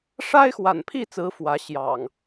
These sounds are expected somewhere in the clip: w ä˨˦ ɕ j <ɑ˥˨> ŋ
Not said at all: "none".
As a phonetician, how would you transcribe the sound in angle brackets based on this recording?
ɑ̰˨˩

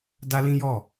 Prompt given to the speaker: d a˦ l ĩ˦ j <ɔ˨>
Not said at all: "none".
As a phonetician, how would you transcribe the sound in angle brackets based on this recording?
ɔ˦˨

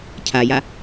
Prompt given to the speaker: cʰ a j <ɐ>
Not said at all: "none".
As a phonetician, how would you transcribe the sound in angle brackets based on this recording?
a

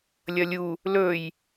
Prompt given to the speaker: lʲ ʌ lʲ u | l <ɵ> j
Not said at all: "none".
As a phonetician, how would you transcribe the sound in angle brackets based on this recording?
ɵ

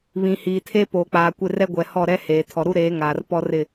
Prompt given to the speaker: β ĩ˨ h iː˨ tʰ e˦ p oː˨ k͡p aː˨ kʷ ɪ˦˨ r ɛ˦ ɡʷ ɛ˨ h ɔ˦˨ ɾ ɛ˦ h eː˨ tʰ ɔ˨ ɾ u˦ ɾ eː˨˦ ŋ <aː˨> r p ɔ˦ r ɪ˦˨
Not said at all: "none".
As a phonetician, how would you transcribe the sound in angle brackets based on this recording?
aː˨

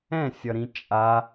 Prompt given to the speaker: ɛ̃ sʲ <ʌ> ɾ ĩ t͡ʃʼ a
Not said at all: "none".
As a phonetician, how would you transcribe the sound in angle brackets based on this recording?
ʌ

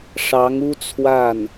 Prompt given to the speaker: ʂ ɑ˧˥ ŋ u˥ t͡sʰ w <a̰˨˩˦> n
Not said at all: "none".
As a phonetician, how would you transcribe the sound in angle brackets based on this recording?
a˥˩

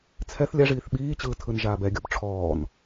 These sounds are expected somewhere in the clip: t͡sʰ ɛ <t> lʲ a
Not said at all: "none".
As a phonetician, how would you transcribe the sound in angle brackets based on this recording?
θ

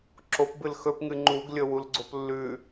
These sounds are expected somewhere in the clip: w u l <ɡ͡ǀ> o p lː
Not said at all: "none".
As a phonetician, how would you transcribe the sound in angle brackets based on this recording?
ɡ͡ǀ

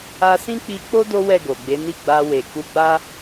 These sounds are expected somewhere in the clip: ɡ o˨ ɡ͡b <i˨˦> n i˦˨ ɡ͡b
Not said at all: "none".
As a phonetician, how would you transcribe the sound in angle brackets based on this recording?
e˨˦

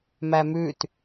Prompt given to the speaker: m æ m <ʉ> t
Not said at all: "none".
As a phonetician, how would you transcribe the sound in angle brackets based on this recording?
ʉ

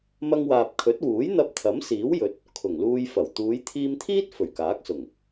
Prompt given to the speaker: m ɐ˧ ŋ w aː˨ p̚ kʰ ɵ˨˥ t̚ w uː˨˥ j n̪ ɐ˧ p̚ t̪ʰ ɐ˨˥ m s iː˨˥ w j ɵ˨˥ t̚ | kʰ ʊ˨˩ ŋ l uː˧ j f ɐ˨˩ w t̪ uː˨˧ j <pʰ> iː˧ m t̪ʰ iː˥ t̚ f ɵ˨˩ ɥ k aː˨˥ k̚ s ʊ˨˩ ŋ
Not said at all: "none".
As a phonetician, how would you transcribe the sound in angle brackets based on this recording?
t̪ʰ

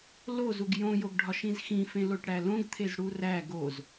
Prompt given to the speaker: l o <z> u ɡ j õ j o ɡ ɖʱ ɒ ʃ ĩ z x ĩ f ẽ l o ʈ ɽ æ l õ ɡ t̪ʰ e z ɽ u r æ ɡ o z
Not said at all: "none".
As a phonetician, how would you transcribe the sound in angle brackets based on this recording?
z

